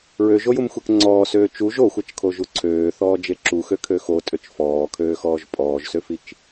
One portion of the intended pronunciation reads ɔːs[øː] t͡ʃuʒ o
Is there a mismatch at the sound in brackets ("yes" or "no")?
no